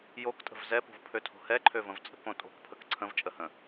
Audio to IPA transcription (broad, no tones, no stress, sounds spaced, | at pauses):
j o k tʼ ə̤ v z ɛ p o̤ v pʰ ø tʰ o̤ h ɛ ǃʰ ø v ə̃ v t͡sʼ ə̤ k õ tʼ o̤ k pʰ ə k ǀʰ ə̃ v t͡ʃʼ ə h ə̃